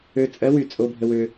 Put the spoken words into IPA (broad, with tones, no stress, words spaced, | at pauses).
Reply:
ø˧t͡sʼɜ˧˥ wy˧˩t͡sʼo˧ bʱə˧wø˧